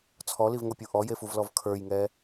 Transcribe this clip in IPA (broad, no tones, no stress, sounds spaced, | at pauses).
t͡sʰ ɔ l i v ŋ o pʲ u ʔ ɔ j e f u v l ɔ v kʰ ə˞ j ŋ ɛ